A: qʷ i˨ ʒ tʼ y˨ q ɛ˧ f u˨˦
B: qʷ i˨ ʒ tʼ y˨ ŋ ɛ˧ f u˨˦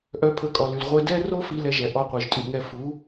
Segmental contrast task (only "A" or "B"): B